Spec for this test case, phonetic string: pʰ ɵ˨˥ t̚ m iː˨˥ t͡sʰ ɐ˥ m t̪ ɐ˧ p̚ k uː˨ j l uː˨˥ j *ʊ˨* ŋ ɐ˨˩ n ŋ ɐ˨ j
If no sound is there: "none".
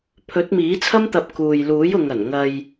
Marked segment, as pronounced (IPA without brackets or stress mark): ʊ˨